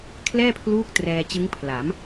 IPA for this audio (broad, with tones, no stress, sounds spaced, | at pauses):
kʰ l ɛː˥˩ pʰ l uː˦˥ k̚ t r ɛː˧ t͡ɕ ɯ˦˥ ŋ pʰ l a˩˦ m